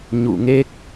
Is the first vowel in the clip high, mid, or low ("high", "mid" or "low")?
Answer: high